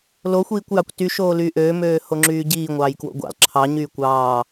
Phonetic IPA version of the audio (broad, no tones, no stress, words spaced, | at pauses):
loxʷiːkʷjɑkʷ tyʃoːlyː ʔøːmøː hoŋ͡ǁyːɟiː ŋʷɑːjkwo̰ɡʷɑ̰l ǁʰɑ ɲyːkʷɑː